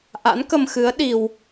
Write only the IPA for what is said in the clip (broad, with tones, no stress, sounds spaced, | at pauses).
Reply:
ʔ a̰˧˥ n k ə˧ m x ɨ˨˦ ə̯ ɗ i˧ w